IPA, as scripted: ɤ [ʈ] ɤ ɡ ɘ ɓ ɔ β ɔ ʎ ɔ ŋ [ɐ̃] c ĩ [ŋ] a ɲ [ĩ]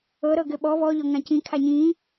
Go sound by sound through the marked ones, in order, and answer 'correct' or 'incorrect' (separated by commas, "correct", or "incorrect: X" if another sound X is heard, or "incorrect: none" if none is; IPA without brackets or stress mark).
incorrect: ɾ, incorrect: ã, incorrect: kʰ, incorrect: ĩː